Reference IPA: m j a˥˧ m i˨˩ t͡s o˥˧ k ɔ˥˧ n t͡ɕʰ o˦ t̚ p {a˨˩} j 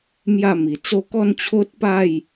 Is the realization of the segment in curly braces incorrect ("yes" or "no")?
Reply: yes